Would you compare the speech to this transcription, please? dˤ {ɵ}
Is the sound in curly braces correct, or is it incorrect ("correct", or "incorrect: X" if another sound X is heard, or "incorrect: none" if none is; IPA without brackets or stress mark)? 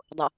incorrect: ʊ